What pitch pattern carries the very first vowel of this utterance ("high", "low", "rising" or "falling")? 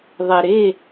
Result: low